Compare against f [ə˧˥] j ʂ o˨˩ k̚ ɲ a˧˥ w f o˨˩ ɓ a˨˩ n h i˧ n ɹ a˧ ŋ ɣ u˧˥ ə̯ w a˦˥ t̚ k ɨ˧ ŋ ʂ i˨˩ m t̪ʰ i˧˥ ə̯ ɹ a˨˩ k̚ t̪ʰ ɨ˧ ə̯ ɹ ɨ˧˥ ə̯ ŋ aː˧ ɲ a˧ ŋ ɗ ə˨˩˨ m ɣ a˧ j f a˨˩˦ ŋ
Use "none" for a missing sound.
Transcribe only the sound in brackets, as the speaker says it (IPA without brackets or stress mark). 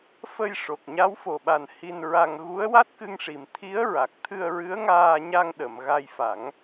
ə˧